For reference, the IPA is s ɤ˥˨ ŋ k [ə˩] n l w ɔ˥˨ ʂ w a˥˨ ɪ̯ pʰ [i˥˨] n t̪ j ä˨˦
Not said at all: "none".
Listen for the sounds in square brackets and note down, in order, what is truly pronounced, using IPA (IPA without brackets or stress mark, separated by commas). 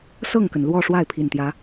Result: ə˩, i˨˩